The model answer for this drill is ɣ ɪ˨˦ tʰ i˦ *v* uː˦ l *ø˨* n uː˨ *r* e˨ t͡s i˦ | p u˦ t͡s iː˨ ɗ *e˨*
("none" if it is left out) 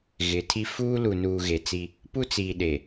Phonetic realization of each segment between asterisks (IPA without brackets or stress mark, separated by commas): f, u˨, ɣ, e˨